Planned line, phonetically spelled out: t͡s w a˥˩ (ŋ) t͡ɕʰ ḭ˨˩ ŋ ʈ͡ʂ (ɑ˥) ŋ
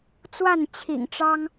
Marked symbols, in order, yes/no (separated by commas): no, yes